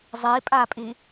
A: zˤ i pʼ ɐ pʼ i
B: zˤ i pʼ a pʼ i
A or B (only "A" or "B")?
B